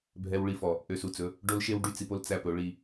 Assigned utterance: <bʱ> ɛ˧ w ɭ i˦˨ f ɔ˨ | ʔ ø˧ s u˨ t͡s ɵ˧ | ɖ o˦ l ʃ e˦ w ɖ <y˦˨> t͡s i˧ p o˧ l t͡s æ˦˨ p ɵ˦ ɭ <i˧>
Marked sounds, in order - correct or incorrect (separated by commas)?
correct, correct, correct